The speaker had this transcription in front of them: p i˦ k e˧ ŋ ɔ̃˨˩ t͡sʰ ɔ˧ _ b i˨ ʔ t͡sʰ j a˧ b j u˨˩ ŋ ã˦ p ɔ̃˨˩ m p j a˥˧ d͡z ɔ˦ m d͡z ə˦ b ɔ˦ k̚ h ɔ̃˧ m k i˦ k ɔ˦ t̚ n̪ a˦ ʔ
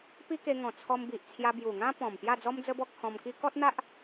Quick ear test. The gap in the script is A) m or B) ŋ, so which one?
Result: A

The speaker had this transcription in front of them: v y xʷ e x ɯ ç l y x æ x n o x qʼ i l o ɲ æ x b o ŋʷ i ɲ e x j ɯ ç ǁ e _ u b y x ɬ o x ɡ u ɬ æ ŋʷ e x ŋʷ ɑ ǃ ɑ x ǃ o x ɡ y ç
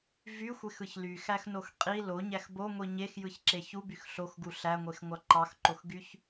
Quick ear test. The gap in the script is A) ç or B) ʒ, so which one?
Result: A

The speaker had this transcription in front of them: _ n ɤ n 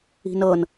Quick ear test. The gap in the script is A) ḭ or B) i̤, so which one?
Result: B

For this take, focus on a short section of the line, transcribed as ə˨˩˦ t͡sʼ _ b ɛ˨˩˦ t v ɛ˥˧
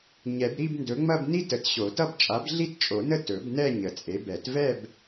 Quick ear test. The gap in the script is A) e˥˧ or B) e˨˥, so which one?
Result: B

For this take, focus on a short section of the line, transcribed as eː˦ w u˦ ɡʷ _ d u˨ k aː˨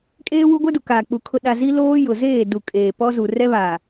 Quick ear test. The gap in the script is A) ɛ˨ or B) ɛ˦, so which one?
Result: B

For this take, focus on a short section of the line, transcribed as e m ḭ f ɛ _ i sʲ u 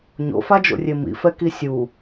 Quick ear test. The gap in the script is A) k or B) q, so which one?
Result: A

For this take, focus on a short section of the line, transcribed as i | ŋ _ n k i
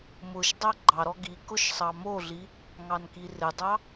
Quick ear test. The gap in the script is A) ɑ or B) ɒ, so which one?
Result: A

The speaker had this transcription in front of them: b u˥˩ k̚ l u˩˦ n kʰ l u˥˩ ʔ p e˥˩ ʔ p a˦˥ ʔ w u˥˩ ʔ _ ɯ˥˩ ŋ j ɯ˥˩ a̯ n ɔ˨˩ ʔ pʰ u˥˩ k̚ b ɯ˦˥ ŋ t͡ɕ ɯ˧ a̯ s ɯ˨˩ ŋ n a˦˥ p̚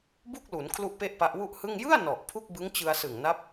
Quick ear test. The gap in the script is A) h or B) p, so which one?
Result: A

